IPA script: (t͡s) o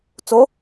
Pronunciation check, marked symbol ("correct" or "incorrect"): correct